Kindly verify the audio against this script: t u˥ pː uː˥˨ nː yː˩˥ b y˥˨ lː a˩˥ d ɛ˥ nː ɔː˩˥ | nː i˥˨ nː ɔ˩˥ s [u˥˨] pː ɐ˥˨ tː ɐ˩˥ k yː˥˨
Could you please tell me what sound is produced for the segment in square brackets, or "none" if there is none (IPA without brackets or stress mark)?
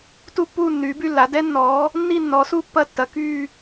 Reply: u˥˨